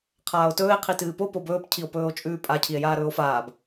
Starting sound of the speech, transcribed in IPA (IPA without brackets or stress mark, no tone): qʰ